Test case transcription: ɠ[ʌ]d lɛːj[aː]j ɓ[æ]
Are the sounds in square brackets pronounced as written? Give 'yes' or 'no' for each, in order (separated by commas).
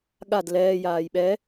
no, yes, no